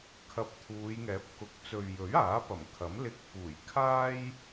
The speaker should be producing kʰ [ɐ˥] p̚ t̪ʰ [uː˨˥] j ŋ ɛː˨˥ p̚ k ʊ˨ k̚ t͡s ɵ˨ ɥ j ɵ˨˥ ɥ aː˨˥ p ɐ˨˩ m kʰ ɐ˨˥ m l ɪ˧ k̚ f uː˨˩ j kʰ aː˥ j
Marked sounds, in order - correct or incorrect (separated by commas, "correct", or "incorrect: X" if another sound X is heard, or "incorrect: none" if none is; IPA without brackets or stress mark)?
incorrect: ɐ˧, incorrect: uː˨˧